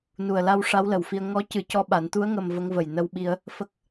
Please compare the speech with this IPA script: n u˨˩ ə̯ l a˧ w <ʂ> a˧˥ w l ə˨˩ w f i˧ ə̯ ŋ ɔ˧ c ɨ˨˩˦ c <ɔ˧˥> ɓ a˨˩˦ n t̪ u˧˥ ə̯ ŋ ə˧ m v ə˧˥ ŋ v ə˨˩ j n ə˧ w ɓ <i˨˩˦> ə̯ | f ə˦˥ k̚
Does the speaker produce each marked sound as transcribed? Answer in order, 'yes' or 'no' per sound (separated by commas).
yes, yes, no